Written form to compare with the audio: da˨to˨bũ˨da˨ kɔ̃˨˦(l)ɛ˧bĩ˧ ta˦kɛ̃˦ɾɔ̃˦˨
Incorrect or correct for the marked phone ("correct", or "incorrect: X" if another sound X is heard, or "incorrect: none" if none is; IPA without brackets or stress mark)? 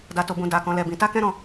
correct